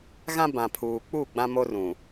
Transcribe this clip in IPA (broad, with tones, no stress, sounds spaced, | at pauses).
ɣ ã˦ b ã˨ pʰ uː˨ k͡p u˦˨ ɡ͡b ã˦ m o˦ r ũ˨